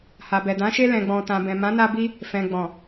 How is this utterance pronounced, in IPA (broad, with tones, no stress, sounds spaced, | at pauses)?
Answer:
h a˨ b ɛ˨ d ã˨˦ ʃ e˧ l ɛ̃˨ ɡ͡b ɔ̃˨ t ã˨ b ɛ̃˨ m ã˨˦ n a˧ b i˧ | f ɛ̃˨ ɡ͡b ɔ̃˨